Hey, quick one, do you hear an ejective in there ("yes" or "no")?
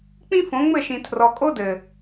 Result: yes